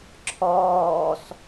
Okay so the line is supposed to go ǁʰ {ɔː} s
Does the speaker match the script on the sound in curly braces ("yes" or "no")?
yes